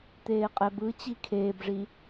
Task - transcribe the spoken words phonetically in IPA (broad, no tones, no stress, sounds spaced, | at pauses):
t̪ eː qʼ ɛ b ɯ t͡ɕ i kʰ eː b ʐ i